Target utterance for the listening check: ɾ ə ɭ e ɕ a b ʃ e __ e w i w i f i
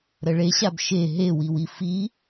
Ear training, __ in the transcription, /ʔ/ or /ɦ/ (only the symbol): ɦ